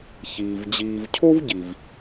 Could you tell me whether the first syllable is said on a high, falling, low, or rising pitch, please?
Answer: low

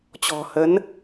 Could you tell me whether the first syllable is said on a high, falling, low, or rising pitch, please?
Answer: low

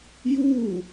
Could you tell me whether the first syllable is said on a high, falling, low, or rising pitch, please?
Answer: falling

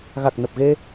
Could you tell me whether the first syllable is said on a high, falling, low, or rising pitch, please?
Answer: low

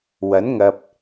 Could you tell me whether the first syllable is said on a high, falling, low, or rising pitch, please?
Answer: rising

